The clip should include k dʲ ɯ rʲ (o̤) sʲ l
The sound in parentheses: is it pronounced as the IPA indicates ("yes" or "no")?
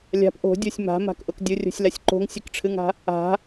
yes